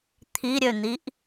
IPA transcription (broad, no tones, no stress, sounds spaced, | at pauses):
t̪ʰ i ɾʲ ø n̪ i ʔ